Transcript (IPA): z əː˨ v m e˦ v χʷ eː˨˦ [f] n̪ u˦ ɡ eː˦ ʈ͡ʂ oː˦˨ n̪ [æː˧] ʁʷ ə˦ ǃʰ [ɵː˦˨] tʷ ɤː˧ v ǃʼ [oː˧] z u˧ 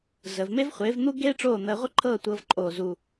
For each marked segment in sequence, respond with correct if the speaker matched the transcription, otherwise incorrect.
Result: incorrect: v, incorrect: əː˧, incorrect: ɤː˦˨, correct

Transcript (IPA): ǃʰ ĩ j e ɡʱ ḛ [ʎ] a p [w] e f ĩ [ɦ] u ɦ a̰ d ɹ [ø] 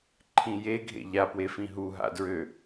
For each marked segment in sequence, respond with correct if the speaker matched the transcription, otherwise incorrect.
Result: correct, correct, correct, correct

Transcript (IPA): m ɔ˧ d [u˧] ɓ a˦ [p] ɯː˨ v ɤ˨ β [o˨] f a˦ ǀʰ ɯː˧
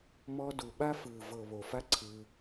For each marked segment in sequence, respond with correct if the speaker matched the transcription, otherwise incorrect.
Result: incorrect: u˨, incorrect: f, correct

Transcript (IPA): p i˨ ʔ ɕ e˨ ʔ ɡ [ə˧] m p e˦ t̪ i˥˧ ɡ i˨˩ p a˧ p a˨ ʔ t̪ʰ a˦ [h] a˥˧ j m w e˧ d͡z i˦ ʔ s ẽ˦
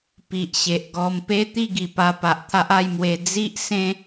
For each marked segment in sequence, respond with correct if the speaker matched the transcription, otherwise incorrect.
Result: incorrect: ɔ˧, incorrect: ʔ

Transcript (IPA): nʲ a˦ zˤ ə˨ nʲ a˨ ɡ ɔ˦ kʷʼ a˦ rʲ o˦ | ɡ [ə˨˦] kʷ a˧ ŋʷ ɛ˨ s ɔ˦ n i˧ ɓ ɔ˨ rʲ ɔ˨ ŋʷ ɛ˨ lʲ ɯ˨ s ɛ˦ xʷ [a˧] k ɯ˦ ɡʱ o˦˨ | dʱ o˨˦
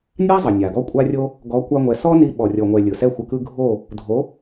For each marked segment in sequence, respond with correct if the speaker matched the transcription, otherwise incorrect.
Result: incorrect: ɔ˨˦, incorrect: ə˧

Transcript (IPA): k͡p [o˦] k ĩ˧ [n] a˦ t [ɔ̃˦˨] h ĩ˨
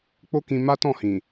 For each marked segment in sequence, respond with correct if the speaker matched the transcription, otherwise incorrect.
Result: correct, incorrect: m, correct

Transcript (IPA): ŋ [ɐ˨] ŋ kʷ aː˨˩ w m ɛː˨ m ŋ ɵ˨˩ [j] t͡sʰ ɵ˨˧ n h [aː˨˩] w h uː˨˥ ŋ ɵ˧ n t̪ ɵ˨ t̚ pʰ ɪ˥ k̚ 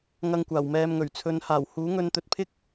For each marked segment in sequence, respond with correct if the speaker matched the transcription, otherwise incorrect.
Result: incorrect: ɐ˧, incorrect: ɥ, correct

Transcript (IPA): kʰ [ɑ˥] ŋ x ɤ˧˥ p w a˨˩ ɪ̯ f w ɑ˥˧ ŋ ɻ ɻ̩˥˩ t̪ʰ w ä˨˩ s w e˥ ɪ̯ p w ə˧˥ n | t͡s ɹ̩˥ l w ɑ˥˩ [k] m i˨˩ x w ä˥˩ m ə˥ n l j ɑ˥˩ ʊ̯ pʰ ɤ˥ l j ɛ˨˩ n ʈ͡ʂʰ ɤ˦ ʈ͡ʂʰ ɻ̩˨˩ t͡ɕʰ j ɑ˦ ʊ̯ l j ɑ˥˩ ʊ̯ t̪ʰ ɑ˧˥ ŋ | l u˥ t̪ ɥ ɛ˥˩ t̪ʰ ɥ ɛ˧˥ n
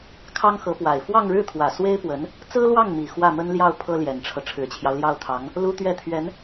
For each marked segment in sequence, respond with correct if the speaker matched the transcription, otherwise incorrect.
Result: correct, incorrect: ŋ

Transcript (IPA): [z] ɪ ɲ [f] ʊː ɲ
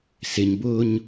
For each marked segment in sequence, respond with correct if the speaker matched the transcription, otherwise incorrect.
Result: incorrect: s, incorrect: b

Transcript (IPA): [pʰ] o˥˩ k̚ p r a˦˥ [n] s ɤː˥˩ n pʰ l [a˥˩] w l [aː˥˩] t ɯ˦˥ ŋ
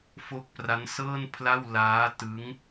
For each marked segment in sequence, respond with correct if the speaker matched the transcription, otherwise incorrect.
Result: incorrect: f, correct, correct, incorrect: aː˦˥

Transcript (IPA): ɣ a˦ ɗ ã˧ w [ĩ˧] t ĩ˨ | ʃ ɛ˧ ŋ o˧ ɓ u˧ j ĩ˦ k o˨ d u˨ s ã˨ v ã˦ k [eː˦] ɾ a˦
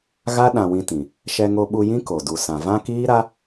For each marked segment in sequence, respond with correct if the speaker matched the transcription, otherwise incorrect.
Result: correct, incorrect: iː˦

